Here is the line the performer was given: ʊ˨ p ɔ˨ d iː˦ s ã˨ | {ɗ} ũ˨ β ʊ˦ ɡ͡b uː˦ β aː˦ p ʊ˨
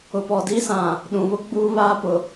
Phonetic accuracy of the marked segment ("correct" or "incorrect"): correct